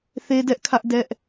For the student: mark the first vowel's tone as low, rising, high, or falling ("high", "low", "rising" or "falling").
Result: high